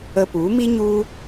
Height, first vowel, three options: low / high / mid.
mid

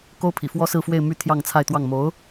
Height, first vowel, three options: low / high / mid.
mid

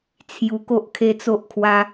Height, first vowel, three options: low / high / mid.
high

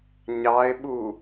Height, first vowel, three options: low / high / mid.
low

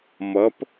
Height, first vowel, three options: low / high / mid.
mid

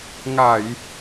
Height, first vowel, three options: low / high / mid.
low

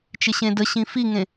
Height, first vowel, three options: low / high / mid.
high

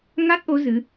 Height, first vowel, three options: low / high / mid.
low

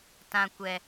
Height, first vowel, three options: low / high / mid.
low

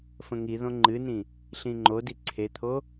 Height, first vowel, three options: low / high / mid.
mid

